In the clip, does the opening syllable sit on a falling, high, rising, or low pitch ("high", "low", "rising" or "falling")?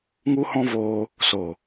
high